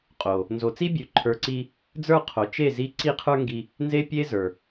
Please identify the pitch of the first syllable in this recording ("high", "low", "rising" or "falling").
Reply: low